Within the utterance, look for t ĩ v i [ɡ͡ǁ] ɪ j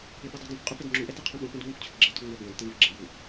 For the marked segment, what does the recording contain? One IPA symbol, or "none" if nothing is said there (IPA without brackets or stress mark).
ɡ͡ǁ